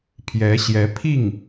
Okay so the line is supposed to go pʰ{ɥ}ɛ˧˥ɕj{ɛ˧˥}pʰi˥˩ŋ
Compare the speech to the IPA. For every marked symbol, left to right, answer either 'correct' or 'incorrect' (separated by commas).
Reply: incorrect, correct